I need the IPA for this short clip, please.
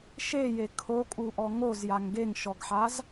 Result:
ʃeje kʰokʼuʔɔ ŋozjaŋ ɡeŋʃɔɡħaz

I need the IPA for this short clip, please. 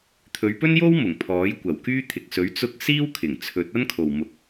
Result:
t̪ʰɵ˨˧ɥpɵ˥njo˥w mʊ˨˩ŋpʰɔː˨˥jkʷɐ˨˩wkyː˥ t̪ʰɪ˨k̚sɵ˨˥ɥ t͡sʊ˥k̚ siː˥wkʰɪ˨˩ŋ t͡sʰɵ˨˥t̚ɐ˥nkʰo˨w mʊ˧k̚

